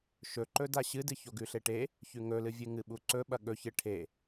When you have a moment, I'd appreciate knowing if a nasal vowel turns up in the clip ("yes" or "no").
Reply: no